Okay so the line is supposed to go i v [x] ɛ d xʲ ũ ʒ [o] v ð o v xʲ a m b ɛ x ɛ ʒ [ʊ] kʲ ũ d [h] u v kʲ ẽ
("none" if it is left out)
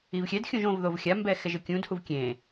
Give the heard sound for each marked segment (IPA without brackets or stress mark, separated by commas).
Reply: xʲ, õ, ɯ, h